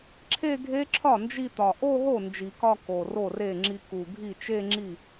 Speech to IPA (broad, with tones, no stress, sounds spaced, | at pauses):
ǁʰ e˥˧ ɡʱ e˦˥ ǁʰ ɒ˥˩ n d͡ʒ i˥˧ t̪ ɒ˨˩ ʔ o˥˧ ɦ o˥˩ n d͡ʒ i˨˩˦ k ɒ˥˧ k o˨˩ r o˥˩ r e˥˩ ŋ͡ǁ i˧ k u˨˩ ɡʱ i˥˩ t͡ʃ e˥˧ ŋ͡ǁ i˥˩